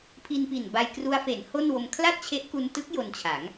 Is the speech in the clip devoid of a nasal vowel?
yes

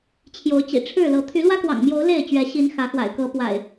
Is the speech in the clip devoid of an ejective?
yes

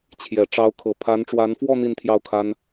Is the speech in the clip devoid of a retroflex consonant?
no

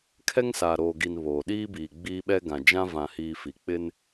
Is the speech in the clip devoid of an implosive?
no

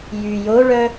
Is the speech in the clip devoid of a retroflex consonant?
no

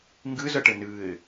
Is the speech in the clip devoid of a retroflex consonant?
no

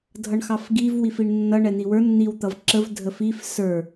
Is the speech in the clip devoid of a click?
no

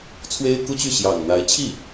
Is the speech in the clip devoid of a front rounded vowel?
no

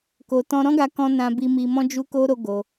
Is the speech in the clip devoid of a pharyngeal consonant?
yes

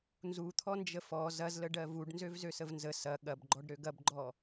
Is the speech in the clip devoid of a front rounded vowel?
no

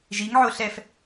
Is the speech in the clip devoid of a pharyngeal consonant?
no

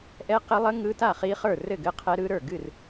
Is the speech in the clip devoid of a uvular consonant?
no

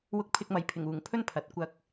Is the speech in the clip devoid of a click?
yes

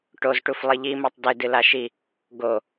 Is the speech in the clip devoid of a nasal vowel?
yes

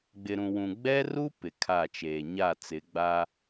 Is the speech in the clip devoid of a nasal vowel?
no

